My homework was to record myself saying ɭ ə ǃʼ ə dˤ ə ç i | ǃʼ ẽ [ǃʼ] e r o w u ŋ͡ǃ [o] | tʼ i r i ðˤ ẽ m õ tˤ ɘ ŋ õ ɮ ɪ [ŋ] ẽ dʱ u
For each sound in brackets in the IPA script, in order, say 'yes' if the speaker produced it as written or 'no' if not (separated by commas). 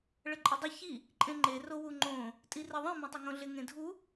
no, no, yes